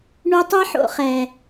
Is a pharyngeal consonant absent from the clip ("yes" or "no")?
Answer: no